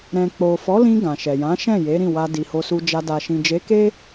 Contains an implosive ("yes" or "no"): no